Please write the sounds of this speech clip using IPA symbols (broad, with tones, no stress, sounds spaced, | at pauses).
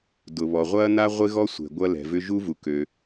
d ʊ˩ β ɔ˩ ʁʷ ɐː˥ n a˥ ʁʷ ɪ˥ ɣ ɔ˥ sʷ ɛ̤˩ ɡʷ ɐ˥ l ɛ̤˩ v ʏ˥ ʒ u˥ v u˩ k ø˩